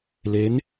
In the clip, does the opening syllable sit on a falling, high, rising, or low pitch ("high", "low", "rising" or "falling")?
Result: rising